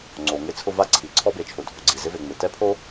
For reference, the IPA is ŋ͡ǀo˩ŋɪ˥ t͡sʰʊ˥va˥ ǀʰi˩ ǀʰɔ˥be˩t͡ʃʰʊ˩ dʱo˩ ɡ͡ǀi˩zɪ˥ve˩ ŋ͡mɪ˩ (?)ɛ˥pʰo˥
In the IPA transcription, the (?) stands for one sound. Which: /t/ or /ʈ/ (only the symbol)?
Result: t